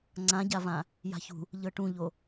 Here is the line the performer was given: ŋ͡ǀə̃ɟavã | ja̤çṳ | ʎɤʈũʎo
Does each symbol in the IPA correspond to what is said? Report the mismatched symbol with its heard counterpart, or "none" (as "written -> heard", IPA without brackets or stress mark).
ə̃ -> ã